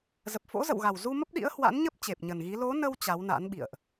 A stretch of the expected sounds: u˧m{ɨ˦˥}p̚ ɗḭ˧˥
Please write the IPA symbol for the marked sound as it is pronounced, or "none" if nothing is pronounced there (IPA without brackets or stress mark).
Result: ə˦˥